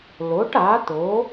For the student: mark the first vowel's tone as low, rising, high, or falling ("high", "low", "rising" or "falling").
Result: rising